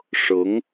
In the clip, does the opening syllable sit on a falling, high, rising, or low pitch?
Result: rising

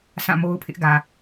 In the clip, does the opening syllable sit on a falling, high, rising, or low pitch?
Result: falling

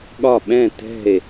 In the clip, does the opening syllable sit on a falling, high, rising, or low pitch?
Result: falling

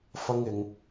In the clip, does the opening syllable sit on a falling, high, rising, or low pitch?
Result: high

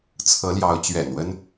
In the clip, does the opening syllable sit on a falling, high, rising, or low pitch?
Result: rising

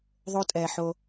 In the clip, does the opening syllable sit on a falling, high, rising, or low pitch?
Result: high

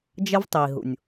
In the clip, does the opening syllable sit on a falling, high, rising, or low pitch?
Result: high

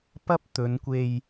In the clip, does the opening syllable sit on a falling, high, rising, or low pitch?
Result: high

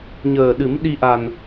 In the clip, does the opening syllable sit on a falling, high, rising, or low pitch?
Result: low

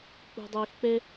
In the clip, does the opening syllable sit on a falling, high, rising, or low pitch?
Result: high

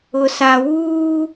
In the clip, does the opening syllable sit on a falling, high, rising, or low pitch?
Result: low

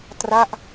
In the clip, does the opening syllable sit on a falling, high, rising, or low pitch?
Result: falling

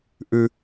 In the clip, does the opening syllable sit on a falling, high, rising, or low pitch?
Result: low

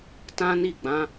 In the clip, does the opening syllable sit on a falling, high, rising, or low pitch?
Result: high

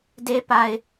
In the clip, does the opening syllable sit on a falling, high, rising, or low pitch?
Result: high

